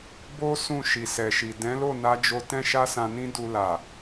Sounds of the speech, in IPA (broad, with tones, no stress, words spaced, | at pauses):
bo˦ sũ˦˨ ʃi˨sɛ˨ʃi˨ dɛ̃˨˦lo˦˨na˧d͡ʒo˧ tɛ̃˦ʃa˦sã˧nĩ˦ du˧la˨